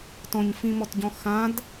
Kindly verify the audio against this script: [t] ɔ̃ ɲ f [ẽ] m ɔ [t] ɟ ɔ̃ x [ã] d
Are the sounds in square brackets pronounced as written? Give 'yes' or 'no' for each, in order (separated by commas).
yes, no, yes, yes